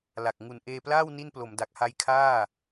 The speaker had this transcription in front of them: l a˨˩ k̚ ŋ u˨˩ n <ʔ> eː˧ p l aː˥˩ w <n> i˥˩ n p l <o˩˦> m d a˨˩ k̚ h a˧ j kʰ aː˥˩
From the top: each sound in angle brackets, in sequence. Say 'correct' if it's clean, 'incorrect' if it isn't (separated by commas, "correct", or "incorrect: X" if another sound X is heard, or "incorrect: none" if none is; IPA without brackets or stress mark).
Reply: correct, correct, correct